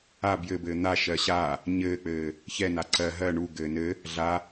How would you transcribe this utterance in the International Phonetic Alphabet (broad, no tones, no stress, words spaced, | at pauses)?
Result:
a bjɘbɘː n̪a ʃɜɕa | ɲɘːk͡pɘː | çɛ naǀɜ ɦɜ ɳu ɡɘːnɘ | ɮa